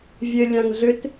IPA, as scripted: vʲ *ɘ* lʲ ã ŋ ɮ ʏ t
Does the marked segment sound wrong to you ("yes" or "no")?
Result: no